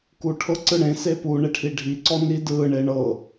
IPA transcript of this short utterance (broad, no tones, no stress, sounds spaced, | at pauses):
k u ʈʰ ɤ ǀ ɯ ɽ ẽ s e p u ɳ e ʈʰ i ɖʱ i ǀ ɔ n i d ɯ ɳ e ɳ ɤ